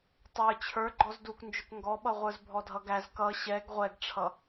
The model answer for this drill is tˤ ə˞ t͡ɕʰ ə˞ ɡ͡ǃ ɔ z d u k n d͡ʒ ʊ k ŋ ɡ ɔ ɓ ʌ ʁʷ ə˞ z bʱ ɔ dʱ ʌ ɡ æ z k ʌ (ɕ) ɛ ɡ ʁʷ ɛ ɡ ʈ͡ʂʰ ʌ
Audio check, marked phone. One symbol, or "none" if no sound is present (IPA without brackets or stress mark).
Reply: ɕ